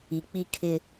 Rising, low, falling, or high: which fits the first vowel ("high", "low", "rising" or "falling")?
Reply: low